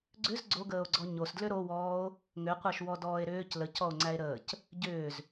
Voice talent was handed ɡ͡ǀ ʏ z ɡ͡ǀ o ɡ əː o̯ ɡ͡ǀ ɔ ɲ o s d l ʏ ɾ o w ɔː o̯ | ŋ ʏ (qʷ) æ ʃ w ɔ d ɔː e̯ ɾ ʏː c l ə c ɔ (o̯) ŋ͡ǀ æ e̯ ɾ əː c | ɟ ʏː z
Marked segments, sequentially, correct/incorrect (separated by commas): correct, correct